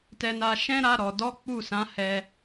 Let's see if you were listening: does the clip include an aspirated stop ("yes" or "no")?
no